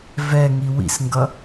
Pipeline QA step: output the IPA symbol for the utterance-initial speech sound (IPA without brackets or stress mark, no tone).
v